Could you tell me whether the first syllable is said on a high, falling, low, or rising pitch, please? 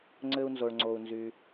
high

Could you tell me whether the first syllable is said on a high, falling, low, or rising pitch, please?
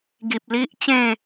low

